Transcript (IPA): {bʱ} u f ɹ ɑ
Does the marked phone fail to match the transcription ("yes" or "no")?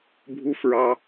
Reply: no